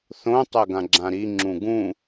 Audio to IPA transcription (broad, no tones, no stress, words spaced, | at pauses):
θõ tˤɛɡãɡ͡ǁãɾi ŋ͡ǁũɡũ